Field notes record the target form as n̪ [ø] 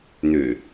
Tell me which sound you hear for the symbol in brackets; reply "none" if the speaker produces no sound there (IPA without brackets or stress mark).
ø